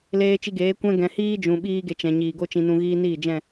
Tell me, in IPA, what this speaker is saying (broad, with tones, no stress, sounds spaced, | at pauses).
l eː˧ t͡ʃ i˧ ɡ eː˨˦ kʷ ɛ̃˧ ɡ ɛ̃˨ h iː˦ d͡ʒ ũ˨ ɓ iː˦ ɡ e˧ t͡ʃ ɛ̃˨ ɲ iː˨ ɡ o˦ t͡ʃ ĩ˧ n ũ˧ ɣ iː˦ n iː˦˨ d͡ʒ ɛ̃˦˨